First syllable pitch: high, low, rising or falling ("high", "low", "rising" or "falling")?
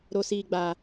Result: low